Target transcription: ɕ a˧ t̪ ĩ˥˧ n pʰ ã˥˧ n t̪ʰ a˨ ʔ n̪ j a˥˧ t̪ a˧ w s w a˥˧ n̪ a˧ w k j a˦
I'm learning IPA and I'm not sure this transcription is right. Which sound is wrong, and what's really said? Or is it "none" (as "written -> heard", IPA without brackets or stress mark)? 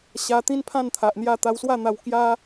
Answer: ĩ˥˧ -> ĩ˦